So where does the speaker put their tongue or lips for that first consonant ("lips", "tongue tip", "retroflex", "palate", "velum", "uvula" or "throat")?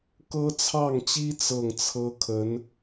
velum